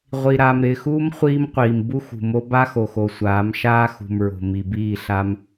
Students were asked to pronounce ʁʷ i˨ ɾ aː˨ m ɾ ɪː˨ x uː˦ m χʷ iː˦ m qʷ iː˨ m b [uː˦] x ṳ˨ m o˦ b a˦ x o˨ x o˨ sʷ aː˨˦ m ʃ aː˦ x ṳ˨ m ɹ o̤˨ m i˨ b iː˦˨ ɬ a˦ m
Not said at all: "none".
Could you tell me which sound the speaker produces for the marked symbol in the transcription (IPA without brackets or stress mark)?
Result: u˦